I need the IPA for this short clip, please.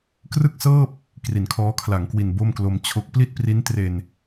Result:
k r ɯ˥˩ k̚ s ɤː˥˩ p̚ | k r i˩˦ n kʰ ɔː˦˥ kʰ l a˩˦ ŋ k w i˨˩ n b o˥˩ m k l o˧ m t͡ɕʰ o˦˥ k̚ p l i˥˩ t̚ p r i˦˥ n t r e˧ n

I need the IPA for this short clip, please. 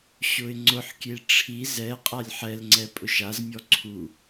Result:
ɕ ʊ ɪ̯ ŋ͡ǀ ʊ ħ kʲ e ʈ͡ʂʰ i z ɛ qʼ a lʲ ħ ɛ l ŋ͡ǀ ɛ pʼ ʊ ʃ a z mʲ ɔ ǀʰ u

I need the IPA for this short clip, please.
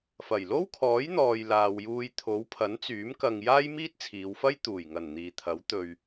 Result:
f ɐ˨˩ j l o˥ w kʰ ɔː˨˥ j n̪ ɔː˨ j l aː˨ w j uː˧ j t̪ʰ o˨˥ w pʰ ɐ˨˥ n t͡s yː˨˥ m k ɐ˨ ŋ j aː˥ j m iː˥ t̚ t͡sʰ iː˨˧ w f ɐ˥ j t̪ uː˨˩ j ŋ ɐ˨˩ n n̪ iː˨ t̪ʰ ɐ˨˥ w t̪ ɵ˧ ɥ

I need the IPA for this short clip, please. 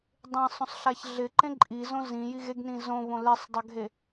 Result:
dˤ ẽ sˤ õ sˤ ɬ a ç ɮ ɪ ǃ ẽ ǃʼ i z õ z ĩ j i ɣ e ɡ n ĩ z õ β õ l e sˤ dˤ a ɡʱ e

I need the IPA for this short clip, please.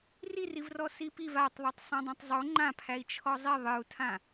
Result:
r i r i v r ɔ s i p i v a tˤ ðˤ a tˤ sˤ ɛ̃ dˤ ã tˤ zˤ o ŋ͡ǃ ã pʰ æ i̯ t͡ʃʰ ɔ zˤ i ðˤ ɨ u̯ tʰ ã

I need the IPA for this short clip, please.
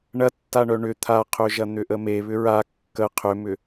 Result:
ɳ ɐ tː a ɳ œ ɳ ʏ t̪ʰ a qʰ ø ʒ ɐ n̪ ʏ ʔ ə m e β ʏ ɹ a kː ə qʰ ʏ m ʏ

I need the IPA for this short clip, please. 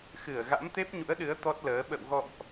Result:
x ɨ˧˩ ə̯ ɣ a̰˧˥ m t̪ e˦˥ p̚ ɲ ṵ˧˥ ə̯ ɗ ɨ˨˦ ə̯ t̪ ɔ˦˥ t̚ l əː˨˦ ɓ ə̰˧˨ w ɣ ɔ̰˧˨ m ʔ

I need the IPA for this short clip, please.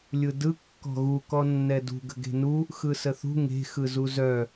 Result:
lʲ ɯ d ɯ kː ɔ̤ ɣ u k ɔ nː ɛ d ṳ ɡ ə̤ ɡ e̤ n u | x ɯ s ə θ ṳ ŋ e̤ x ɯ z u z œ

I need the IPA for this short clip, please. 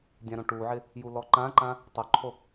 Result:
dʲ ã ɾ õ ʈ u ʕ ɪ | j u l ɔ ǃ ã ǃ ã | tˤ ʊ ǃʰ o

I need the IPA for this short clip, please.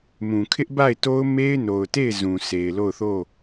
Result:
m ũ˨ kʰ ɪ˦ ʔ b a˦˨ ɪ̯ t o˦ ʊ̯ m e˦ ɪ̯ n o˨ ʊ̯ t e˦˨ ɪ̯ z ũ˨ s e˨ ɪ̯ l o˦˨ ʊ̯ θ o˦˨

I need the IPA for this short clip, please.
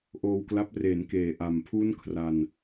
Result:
ʔ oː˧ w k l a˦˥ p̚ r eː˩˦ n k eː˨˩ ʔ a˨˩ m pʰ u˥˩ n kʰ r a˧ n

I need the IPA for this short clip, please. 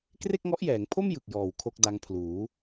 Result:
k r e˥˩ k̚ ŋ ɔ˦˥ ʔ j ɛː˩˦ ŋ pʰ o˥˩ m j ɯ˨˩ k̚ j ɔː˨˩ w kʰ o˥˩ k̚ d a˧ ŋ pʰ l uː˩˦

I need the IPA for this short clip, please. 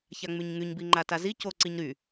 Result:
ç a ŋ͡m y ɲ ŋ y ɲ b i ŋ͡ǃ a t a z i c o ǀ i ɲ ɾ y

